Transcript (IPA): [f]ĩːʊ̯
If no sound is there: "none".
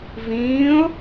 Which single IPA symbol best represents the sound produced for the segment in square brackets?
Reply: v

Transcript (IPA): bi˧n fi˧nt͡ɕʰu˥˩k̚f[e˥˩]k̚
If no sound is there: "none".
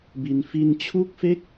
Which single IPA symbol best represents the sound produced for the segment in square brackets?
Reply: e˥˩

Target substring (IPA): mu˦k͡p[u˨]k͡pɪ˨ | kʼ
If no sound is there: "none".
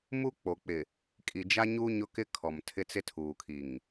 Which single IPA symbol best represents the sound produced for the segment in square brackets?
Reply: o˨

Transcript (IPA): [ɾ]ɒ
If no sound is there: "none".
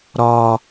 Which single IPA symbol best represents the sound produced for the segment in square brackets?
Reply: ɾ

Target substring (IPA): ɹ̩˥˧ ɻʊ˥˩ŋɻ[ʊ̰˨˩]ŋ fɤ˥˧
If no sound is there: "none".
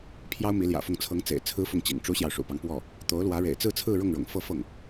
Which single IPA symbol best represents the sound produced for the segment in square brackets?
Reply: ʊ̰˨˩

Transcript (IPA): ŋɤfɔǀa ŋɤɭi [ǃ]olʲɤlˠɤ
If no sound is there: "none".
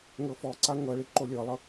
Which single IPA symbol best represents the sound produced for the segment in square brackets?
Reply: ǃ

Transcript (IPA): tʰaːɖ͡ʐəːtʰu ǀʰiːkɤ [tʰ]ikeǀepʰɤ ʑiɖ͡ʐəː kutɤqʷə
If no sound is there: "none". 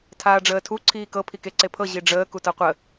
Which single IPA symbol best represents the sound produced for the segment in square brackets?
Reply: pʰ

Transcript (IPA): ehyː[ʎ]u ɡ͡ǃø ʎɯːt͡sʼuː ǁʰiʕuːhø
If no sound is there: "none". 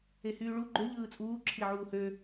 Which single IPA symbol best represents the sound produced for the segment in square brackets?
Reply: ɭ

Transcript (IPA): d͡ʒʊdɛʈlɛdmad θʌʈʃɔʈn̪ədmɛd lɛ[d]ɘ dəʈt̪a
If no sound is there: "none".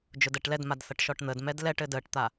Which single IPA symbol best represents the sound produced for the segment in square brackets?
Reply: ʈ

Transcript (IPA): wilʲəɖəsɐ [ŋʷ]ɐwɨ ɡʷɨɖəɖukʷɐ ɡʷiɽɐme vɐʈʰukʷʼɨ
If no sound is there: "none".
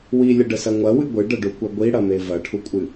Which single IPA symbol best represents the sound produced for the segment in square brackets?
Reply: ŋʷ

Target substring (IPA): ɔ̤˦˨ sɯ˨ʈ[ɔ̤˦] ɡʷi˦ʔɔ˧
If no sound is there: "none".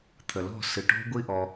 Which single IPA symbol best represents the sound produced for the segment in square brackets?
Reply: ɔ̤˦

